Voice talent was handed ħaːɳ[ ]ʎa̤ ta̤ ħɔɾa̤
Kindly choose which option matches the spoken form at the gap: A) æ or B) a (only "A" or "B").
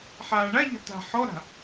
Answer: B